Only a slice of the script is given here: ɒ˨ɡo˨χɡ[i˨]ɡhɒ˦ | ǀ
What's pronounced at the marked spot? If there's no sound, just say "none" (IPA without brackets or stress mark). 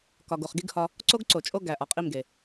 i˦